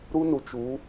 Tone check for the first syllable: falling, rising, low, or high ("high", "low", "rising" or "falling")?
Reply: high